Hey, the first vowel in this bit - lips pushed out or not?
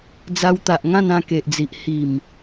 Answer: no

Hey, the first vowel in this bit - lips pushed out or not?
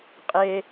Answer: no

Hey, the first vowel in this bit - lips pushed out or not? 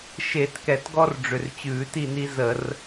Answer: no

